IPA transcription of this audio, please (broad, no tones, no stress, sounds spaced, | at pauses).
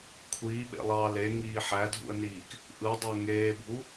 kʷʰ iː ɓ ḛ lˠ ɑː l e ŋ iː ħ æ dʱ ṵ ə̯ n iː k | ʔ ɯ dˤ o ŋ eː bʱ u